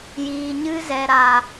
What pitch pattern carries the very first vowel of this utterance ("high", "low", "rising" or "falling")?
low